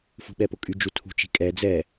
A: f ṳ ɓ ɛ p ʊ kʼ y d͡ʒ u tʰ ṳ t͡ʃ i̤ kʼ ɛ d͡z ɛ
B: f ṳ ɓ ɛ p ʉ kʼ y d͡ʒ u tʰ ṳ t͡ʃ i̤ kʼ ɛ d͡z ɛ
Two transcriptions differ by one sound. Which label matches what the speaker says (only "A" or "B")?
A